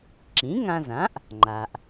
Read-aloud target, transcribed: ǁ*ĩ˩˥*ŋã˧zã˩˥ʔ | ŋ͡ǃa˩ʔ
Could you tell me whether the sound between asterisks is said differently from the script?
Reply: no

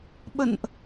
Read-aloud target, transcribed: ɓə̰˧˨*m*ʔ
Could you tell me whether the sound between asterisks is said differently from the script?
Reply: yes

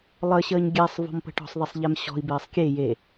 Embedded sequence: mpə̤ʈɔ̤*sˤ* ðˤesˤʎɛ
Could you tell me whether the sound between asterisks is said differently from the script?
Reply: no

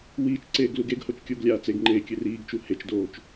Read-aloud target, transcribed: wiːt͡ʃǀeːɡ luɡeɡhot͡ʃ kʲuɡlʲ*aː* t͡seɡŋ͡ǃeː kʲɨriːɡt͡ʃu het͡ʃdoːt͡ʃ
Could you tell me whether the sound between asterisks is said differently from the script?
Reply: no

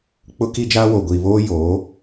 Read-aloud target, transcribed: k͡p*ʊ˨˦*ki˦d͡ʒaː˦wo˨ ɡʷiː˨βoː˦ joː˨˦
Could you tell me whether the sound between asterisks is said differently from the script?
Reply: yes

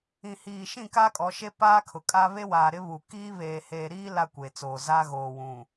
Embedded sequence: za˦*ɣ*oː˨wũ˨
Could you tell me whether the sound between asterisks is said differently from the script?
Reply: no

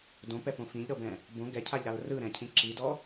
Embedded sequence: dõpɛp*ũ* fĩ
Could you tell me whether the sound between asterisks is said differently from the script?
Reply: yes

